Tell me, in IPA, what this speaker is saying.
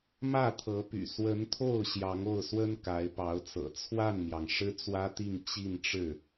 mä˥˩t̪ʰɤ˧˥py̰˨˩ swə˧˥nt̪ʰo˥˩ʊ̯ ɕjɑ˧˥ŋo˥˩ʊ̯swə˥n ka˧˥ɪ̯pɑ˧˥ʊ̯t͡sɤ̰˨˩ t͡sʰwa˥˩nmjɑ˩ŋ ʂɻ̩˥t͡swä˥t̪i˥˧ŋ t͡ɕi˥˧nʈ͡ʂɻ̩˥˩

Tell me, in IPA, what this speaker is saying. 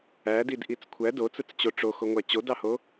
ædid ʔit͡skʷʰæ dot͡sɯt͡st͡ɕo ʈ͡ʂoxoŋʷæ t͡ɕodɑho

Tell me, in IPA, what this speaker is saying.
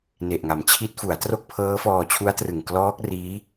ne˨˩ʔŋa˩˦mt͡ɕʰi˦˥t̚ fu˩˦a̯tro˥˩k̚ pʰɤː˦˥fɔː˧t͡ɕʰu˦˥a̯trɯ˨˩ŋ klɔː˦˥k̚ riː˦˥

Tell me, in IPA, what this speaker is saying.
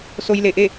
so˧jle˧˩ʔe˥˨

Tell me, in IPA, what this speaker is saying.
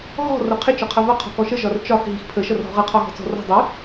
ɣɔ̤ rʌqʰɪ t͡ʃɒqʰʌvʌ qʰɔ̤kɔʃə ʒɒrt͡ʃɒx ɦixpʰə ʃʌrɦɔ̤ʁʌ qʰɒɣɔ̤t͡sɔ̤rɔ̤ dˤɪ

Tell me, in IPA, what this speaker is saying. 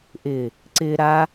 ʔɪ | ǀɪ ɾa

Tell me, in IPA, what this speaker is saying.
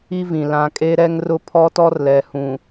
i˦vĩ˨ lã˨kʼe˦ɾɛ˦ŋ rʊ˦pʰɔ˦tɔ˦r lɛ˨hũ˨

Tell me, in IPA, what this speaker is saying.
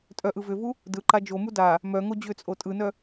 tʼœʔɯ vʏvu | dɯǃa d͡ʒomu da | mœ ŋod͡ʑʏt͡sʼo tʼɯnœ

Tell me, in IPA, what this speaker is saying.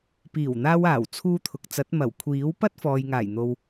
piː˨˩wn̪aː˧waː˨˩w t͡sʰuː˧t̪ʰʊ˨k̚t͡sɐ˨˥t̚ mɐ˨˩wkʷʰiː˨˥wpɐ˥t̚ fɔː˨jŋaː˨˩jn̪o˨w

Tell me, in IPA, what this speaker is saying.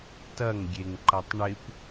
tɐŋ ɡʲeŋǃɐtˤɳɪp

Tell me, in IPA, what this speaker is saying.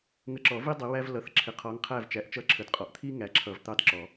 ŋə˨˦ǁɔ˨˩˦vi˦ dˤi˨˦wæ˦vlʌ˨˦θǁʰɪ˨˩˦ qʰɔ˨˦ŋqʰæ˦˨vt͡ʃæ˨˦ʔ t͡ʃʌ˦˨ǁʰə˨dqʼɔ˨˦ʔ t̪ʰi˦ ŋæ˨˦ǁʰʌ˨˩˦v t̪ɑ˦˨dǁɔ˨˩˦

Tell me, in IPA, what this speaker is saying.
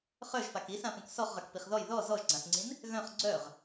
χœʒfak isãpũk sɔχʁœkpiχ ðɔj ðɔ zɔʒɡ͡ǀãsŋ͡ǀĩn | ɣœ̃χ ɡ͡ǀœʁ

